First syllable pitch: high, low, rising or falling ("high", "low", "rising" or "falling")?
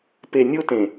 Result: low